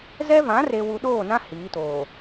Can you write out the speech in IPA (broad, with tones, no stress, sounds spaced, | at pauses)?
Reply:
z ɛ˦ v ã˨˦ r e˨ w u˨ ɗ oː˦˨ n ã˦ h iː˨˦ t oː˨